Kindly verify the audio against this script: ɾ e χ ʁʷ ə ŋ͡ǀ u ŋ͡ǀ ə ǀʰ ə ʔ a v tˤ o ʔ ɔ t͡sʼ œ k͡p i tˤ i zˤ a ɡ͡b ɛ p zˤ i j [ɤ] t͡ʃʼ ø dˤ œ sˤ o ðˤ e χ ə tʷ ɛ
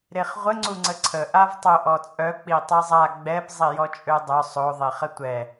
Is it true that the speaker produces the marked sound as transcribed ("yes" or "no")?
no